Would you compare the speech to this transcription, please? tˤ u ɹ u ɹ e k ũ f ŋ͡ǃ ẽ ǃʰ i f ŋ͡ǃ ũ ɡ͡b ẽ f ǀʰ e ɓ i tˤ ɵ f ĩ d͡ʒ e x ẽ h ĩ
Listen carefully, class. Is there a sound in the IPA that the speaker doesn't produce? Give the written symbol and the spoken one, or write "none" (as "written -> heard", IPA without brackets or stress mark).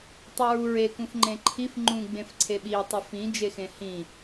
none